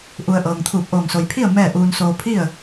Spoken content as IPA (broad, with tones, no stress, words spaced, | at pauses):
ʔu˧ə̯ ʔɤː˩ŋt̪ʰuː˧˩p̚ʔoː˧˩ŋ so˩jpʰi˥˨ə̯ mɛː˥˨ʔuː˧nsoː˧ pʰi˥˨ə̯